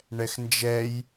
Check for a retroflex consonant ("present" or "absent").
present